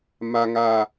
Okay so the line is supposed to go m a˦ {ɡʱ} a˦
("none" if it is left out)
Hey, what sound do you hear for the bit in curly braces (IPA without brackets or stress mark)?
ŋ